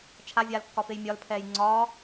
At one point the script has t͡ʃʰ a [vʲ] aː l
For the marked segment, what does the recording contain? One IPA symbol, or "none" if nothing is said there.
vʲ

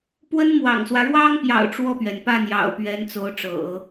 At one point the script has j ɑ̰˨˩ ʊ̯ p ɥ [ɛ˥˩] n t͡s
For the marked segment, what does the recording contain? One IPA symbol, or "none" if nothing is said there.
ɛ˧˥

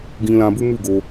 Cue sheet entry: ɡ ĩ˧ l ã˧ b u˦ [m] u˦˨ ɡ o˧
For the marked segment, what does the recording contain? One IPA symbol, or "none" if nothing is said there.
m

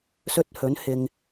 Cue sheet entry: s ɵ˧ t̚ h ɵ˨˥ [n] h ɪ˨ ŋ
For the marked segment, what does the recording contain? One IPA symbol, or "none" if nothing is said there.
n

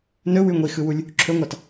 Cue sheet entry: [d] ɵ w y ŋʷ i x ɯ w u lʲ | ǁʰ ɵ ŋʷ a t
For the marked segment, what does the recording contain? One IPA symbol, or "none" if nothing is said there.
n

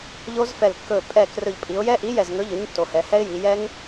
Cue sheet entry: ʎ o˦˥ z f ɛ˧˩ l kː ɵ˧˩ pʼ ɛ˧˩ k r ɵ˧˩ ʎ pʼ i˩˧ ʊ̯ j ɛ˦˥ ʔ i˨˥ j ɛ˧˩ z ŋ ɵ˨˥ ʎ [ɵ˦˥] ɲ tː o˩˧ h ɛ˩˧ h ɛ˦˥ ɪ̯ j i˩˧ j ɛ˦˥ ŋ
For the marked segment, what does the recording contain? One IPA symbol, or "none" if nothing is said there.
ɵ˨˥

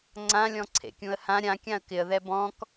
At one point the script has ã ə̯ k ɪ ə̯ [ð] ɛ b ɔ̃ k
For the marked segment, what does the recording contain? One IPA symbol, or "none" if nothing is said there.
ð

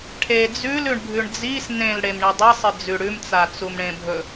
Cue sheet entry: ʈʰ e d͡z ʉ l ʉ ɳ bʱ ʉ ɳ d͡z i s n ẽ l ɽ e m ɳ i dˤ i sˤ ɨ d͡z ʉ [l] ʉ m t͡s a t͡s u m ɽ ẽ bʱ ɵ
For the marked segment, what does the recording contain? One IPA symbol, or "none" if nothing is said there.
ɽ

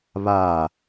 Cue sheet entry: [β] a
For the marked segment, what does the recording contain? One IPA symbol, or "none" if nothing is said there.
β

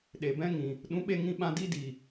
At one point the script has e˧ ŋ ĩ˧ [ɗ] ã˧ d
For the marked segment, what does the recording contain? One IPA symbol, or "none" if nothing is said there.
ɓ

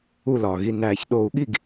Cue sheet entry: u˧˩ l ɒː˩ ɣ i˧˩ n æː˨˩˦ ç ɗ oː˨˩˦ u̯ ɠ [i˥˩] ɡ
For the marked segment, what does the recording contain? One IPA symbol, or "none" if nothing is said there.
i˥˩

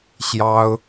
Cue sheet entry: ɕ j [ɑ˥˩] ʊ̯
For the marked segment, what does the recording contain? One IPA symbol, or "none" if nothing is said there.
ɑ˥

